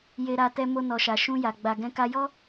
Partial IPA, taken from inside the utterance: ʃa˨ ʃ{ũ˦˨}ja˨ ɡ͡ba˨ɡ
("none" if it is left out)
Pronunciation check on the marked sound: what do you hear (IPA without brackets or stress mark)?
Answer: ũ˧